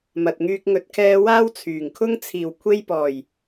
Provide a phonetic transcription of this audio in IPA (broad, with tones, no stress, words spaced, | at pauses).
mɐ˨t̚ŋyː˧k̚ ŋɵ˨˥t̚kʰɛː˧ waː˥w t͡sʰyː˨˩ŋkʰʊ˥ŋ t͡sʰiː˨˩wkʷʰe˧jpɔː˨˩j